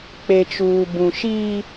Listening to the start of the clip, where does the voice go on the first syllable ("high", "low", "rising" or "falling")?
low